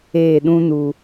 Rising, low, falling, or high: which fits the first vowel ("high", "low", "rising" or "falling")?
falling